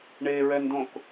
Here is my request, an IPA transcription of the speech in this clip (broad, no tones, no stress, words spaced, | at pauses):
ɳeɹɛndõk